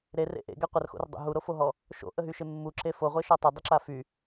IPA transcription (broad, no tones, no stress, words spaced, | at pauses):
ɾerḛ ʔḛɡɛ qʷərxo̰rdˤo̰ ɦuɾofoɦɔ | ʃo̰ʔəɦyʃe mːuǁe foʁʷeʃɔ tˤødˤəǁa fy